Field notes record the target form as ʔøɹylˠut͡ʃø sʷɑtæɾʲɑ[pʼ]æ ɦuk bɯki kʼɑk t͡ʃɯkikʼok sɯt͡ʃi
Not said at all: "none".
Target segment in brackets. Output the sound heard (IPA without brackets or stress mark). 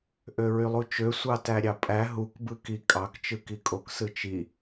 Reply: pʼ